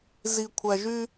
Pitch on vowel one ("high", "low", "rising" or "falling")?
low